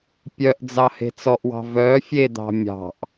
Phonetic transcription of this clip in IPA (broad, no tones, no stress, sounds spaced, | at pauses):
pʲ œ ʔ d͡z ɑ h e̤ t͡s ɔ ʔ w ɑ̤ v œ fʲ e d̪ ɑ̤ mʲ ɑ̤ ʔ